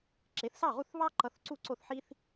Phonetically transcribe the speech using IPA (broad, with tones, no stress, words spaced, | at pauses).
ǁe˩˥θsɑ˥˩ʁu˥˩θβɑ˥ ǃʌ˧θǀu˥˩ ǀo˥˩θħi˥θ